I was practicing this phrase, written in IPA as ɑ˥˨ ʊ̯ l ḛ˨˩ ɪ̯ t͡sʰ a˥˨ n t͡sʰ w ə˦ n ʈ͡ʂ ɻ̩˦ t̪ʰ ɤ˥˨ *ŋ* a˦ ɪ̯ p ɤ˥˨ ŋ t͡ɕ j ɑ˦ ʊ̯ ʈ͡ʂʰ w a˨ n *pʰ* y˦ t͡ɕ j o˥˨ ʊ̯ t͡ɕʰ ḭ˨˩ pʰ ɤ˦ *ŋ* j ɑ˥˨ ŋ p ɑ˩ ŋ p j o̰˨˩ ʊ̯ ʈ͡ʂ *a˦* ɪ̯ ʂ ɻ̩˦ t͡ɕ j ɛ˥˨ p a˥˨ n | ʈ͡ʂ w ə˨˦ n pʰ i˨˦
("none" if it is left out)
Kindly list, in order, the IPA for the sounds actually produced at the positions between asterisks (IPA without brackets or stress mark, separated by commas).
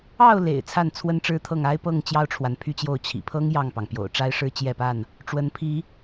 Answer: ŋ, pʰ, ŋ, a˦